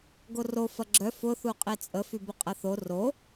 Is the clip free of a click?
no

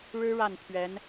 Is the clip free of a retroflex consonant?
no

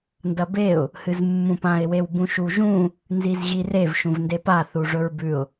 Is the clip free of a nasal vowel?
no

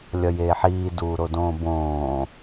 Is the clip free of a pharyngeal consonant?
no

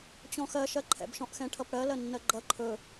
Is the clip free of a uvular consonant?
yes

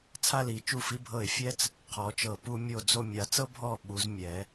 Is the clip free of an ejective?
yes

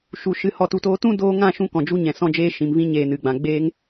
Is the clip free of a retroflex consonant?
yes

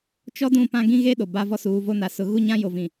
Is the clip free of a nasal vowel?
no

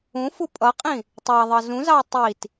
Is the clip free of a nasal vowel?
no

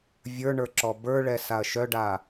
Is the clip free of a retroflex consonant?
no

